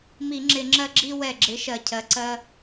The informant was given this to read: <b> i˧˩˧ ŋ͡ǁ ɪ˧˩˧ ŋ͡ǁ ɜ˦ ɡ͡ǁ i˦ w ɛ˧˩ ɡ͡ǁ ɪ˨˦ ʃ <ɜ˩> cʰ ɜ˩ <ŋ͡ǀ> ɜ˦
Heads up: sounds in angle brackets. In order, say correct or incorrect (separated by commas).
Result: incorrect, correct, incorrect